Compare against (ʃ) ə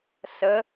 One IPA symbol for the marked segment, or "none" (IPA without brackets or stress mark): s